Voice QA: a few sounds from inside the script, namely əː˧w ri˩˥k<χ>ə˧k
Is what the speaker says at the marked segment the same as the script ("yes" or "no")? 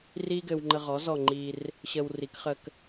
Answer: yes